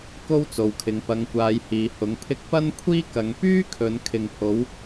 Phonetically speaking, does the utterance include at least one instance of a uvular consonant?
no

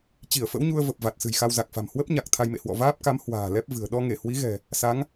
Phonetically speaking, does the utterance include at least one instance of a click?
no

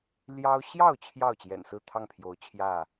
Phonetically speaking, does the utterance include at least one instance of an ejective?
no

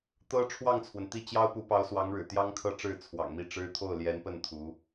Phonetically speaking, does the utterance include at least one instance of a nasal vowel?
no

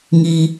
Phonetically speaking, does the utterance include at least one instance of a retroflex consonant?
no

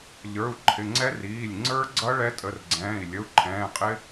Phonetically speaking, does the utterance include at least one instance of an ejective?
yes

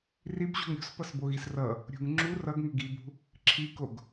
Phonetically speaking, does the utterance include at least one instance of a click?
yes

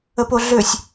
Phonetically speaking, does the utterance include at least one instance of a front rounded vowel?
yes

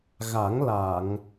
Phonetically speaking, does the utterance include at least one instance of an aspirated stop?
no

